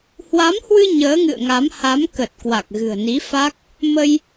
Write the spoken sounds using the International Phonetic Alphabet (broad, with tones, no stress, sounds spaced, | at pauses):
h w a˨˦ m h w ɨ˧ ɲ əː˨˦ ŋ ɨ̰˧˨ ə̯ ŋ a˨˦ m h a˨˦ m k ə˨˩ t̚ k w a˨˩ k̚ ɣ ɨ̤˨˩ ə̯ n i˨˦ f a˦˥ k̚ | m ə˧ j